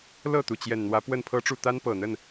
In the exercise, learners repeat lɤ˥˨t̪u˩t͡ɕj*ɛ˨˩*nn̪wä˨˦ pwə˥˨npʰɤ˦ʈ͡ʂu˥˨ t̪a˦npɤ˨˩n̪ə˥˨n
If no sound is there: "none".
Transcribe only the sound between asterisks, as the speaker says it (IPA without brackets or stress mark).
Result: ɛ˨˩